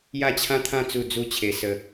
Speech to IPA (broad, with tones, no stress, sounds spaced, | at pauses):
j a˥˧ t͡ɕʰ ã˦ t̪ʰ ã˥˧ t͡s u˥˧ d͡z u˦ t͡ɕʰ e˧ s ə˦